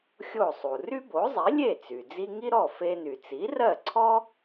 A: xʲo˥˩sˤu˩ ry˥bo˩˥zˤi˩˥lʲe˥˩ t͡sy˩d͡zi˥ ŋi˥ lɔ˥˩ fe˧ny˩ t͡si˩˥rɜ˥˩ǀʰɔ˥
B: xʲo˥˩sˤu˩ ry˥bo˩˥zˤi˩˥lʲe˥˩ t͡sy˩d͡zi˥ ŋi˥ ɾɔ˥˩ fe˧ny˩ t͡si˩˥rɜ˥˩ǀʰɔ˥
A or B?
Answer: B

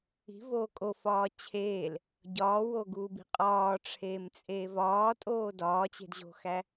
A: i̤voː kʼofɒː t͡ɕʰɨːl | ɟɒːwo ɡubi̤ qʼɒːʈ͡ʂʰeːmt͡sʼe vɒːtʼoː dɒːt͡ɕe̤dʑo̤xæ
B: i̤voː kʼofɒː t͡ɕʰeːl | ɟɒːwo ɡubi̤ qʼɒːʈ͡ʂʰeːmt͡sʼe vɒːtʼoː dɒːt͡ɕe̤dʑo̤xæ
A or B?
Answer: B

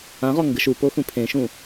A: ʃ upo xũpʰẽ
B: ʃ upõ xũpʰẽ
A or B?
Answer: A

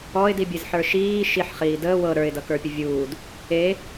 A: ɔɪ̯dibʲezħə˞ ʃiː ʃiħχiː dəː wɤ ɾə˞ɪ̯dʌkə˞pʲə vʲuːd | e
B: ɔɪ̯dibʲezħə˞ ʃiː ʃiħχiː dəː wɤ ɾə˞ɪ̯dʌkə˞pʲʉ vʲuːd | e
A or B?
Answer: A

